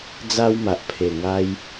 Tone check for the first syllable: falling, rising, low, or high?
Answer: high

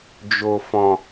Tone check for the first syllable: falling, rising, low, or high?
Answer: low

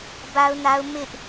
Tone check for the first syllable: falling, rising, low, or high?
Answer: high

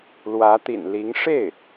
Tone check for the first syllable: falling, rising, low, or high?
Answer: rising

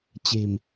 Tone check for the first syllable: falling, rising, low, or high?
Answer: low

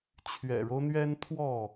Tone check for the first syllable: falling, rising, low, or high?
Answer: low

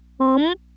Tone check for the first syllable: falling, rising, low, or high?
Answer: rising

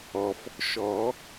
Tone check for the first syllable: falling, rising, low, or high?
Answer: low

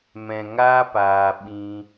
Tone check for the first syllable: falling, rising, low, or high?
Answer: low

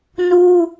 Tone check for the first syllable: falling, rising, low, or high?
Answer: high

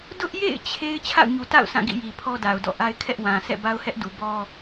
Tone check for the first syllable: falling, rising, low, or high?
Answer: high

